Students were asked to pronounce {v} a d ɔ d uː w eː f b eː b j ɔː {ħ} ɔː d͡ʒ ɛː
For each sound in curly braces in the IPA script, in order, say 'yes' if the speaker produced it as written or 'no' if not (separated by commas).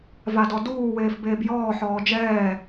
yes, yes